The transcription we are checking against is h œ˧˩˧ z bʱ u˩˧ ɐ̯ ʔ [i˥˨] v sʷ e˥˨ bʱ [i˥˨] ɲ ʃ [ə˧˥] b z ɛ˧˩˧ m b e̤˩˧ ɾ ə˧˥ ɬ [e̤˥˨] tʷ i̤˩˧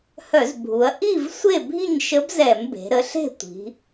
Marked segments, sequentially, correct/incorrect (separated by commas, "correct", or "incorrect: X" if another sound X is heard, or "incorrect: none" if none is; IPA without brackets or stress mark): correct, correct, correct, correct